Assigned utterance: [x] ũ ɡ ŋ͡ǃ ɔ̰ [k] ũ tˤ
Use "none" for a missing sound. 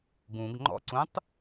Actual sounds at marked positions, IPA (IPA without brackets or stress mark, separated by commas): ɡ, ǀ